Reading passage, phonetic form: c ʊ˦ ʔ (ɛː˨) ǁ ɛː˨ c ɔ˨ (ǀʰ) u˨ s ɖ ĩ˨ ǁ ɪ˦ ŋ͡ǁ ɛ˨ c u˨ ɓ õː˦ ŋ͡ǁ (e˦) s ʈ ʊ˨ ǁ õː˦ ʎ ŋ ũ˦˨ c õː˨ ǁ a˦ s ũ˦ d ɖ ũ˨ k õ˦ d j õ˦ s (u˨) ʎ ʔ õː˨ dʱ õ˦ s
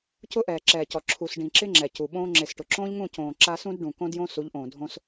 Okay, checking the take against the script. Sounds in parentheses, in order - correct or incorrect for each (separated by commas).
correct, incorrect, incorrect, incorrect